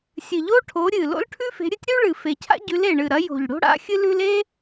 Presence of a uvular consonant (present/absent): absent